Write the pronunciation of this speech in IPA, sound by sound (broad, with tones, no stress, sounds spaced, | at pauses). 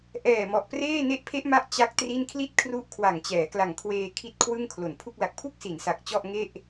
ʔ ɛː˨˩ m ɔ˨˩ ʔ p r eː˥˩ n e˥˩ ʔ pʰ e˦˥ ʔ m a˦˥ ʔ t͡ɕ a˦˥ k̚ t r i˥˩ n kʰ l i˥˩ t̚ kʰ r u˦˥ ʔ kʰ w a˨˩ ŋ t͡ɕ ɛː˩˦ k l a˨˩ ŋ kʰ w eː˧ kʰ i˦˥ t̚ kʰ w ɯ˥˩ ŋ kʰ l o˨˩ n pʰ u˥˩ k̚ l a˨˩ k̚ pʰ u˥˩ k̚ s i˩˦ n s a˨˩ k̚ t͡ɕ ɔ˥˩ ʔ ŋ e˥˩ ʔ